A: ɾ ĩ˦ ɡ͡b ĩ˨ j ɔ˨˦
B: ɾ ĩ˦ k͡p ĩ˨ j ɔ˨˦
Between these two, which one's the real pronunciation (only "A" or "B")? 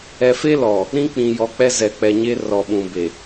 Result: B